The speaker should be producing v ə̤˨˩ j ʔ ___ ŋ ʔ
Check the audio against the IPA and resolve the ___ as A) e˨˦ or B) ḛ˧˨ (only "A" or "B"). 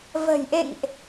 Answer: B